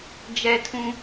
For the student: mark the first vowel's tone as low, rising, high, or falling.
high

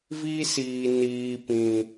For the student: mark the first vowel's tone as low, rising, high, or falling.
high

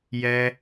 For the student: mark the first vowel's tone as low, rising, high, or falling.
high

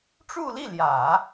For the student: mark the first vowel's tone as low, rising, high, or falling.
falling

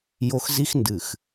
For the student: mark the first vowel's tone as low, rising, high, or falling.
high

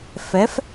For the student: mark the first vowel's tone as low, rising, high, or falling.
rising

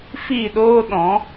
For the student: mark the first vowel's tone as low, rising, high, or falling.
falling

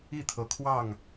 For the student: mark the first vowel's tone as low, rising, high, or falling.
falling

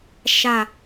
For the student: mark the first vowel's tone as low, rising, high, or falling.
low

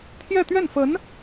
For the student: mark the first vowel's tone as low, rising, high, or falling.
falling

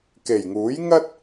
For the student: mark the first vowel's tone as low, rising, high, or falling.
low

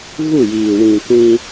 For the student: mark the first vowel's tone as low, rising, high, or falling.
falling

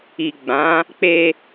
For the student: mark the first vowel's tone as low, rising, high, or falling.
low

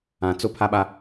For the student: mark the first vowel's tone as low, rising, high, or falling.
low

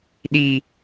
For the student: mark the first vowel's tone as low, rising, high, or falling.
high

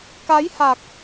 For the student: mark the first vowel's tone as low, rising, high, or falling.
rising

